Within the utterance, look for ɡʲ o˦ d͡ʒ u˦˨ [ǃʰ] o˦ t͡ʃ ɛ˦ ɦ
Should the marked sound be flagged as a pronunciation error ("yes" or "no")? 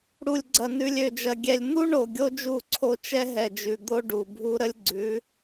yes